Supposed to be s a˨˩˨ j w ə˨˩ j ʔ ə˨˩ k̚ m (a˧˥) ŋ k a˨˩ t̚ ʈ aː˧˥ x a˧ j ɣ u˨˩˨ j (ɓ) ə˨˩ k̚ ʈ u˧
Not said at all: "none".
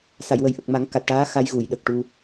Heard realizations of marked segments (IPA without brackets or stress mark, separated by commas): a˨˩˦, ɗ